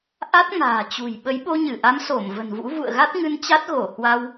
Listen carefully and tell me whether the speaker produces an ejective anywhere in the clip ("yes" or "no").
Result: no